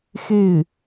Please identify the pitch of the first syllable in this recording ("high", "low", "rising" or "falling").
falling